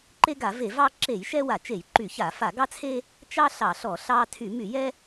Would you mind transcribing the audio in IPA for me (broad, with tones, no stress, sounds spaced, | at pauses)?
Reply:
ǃ e˦ ɡ a˧˩˧ v e˧˩˧ v ɑ˦ ǁ e˧˩˧ j ʃ ɛ˦ w a˧˩˧ t͡ʃ e˧˩˧ j ǃ y˧˩˧ ç a˧˩˧ f a˧˩˧ ɡ ɑ˦ t͡sʰ e˦ | t͡ʃ ɑ˦ ɬ ɑ˧˩˧ ɬ ɔ˧˩˧ ɬ ɑ˦ tʰ y˧˩˧ m y˧˩˧ j ɛ˦